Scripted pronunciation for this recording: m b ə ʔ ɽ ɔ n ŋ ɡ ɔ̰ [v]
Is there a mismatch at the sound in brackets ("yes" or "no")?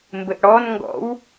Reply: yes